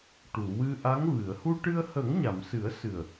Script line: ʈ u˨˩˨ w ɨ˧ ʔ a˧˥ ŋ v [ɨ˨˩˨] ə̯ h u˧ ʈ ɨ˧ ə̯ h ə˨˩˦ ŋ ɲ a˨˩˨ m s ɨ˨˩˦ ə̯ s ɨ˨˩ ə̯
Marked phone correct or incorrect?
correct